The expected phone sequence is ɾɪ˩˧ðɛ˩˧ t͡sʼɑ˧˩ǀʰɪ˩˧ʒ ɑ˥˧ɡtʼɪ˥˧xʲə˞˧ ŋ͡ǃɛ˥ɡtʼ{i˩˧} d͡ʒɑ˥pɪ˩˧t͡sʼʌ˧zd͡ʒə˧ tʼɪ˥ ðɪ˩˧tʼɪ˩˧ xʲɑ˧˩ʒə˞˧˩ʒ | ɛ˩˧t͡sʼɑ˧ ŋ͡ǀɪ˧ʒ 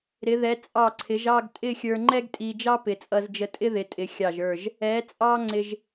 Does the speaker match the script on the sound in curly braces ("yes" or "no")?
no